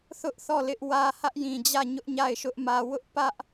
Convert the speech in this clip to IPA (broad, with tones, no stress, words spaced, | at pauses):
θʊ˦ʔθɔ˦˨ lɪ˦ʔwä˦ hä˦ʔjĩ˨d͡ʑä˦˨ ɲʊ˦ʔɲa˦˨ɪ̯ʃʊ˦ʔ mä˦ wʊ˦ʔpä˦ʔ